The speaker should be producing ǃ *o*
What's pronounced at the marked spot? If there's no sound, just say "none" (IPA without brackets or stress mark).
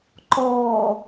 ɔ